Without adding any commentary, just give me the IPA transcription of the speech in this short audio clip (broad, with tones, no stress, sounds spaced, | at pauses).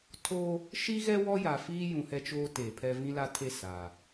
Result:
tʰ o˦ | ʃ i˦ ɣ ɛ˦ w ɔ˦ j a˨ f iː˦ j ũ˨ h ɛ˦ t͡ʃ oː˦ t eː˨ pʰ ɛ˦ v ĩ˦ l a˦ tʰ e˦˨ s a˨